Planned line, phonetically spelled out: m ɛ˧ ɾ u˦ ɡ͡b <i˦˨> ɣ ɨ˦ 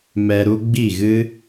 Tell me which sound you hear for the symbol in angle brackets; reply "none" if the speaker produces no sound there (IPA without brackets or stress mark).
i˦˨